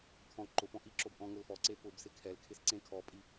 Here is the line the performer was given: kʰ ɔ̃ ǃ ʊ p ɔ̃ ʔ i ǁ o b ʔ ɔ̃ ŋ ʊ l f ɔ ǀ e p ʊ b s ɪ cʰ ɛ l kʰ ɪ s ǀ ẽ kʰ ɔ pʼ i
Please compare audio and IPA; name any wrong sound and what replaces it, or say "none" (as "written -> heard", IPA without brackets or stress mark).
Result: cʰ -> kʰ